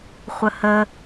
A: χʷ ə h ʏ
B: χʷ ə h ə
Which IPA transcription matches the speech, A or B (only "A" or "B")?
B